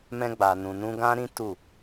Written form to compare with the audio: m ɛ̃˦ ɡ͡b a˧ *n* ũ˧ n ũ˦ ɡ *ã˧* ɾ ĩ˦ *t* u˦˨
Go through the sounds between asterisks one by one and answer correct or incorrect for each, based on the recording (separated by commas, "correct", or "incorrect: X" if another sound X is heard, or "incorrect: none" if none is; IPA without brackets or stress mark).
correct, incorrect: ã˦, correct